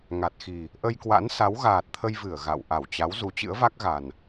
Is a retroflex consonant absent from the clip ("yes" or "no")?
yes